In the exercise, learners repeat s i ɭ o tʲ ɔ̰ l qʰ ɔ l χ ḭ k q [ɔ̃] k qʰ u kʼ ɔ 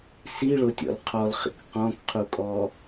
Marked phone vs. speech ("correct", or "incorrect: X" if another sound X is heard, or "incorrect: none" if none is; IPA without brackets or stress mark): correct